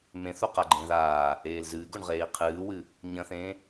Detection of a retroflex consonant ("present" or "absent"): present